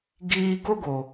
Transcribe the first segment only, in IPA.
ɡ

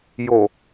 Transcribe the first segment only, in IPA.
j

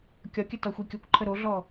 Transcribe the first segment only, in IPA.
kʲ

